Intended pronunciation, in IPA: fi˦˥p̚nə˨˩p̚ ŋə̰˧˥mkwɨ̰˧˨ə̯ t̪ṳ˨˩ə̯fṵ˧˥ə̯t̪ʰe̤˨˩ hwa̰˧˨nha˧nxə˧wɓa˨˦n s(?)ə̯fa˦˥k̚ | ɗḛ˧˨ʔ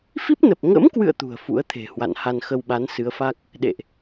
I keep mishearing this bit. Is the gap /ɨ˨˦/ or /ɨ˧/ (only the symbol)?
ɨ˨˦